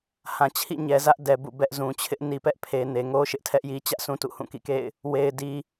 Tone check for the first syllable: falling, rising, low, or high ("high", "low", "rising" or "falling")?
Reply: low